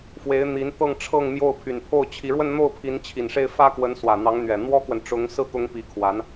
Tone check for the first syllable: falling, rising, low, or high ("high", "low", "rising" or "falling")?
rising